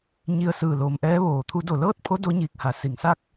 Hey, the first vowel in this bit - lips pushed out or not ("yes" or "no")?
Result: no